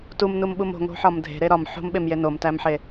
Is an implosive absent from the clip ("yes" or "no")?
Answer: no